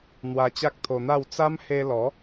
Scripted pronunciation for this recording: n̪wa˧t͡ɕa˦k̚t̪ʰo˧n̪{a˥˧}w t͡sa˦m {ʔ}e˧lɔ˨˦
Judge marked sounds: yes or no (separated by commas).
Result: yes, no